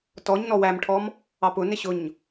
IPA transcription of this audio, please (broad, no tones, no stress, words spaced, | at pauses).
tɔɲ nɔwæmʈʰɔm | ɑpʊnɪ ɕʊɲ